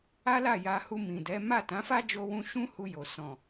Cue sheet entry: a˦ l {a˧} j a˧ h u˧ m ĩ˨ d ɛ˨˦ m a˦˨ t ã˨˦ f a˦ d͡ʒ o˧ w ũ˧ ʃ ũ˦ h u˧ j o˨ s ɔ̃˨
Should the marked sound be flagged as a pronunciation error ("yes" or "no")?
yes